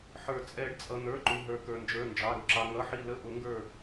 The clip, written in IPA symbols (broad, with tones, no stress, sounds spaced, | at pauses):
ħ ə˞˨˩˦ t͡sʼ ɛ˨˩˦ ɖ t͡sʼ ʌ˩ n̪ ə˞˩˧˩ ǃ u˩ ɦ ə˞˩ k ə˞˩ n d͡ʒ ə˞˩˧˩ n d͡ʒ ɑ˩˧˩ ɾ ʊ˧˩ ǁ ɑ˩ ŋ ʌ˩˧˩ ħ i˧˩ l ə˧˩ ʔ ʊ˨˩˦ ŋ ɡ ə˞˧˩